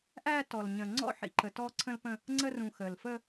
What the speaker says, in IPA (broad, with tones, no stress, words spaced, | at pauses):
ʔæ˦tɔ˨l ɲə̃˨ŋ͡ǀɔ̰˦ħḭ˨ǃə˨ tɔ˦ǀʰə̃˦lpə̃˦ | ŋ͡ǀə˦rũ˨ xəː˨l fə˦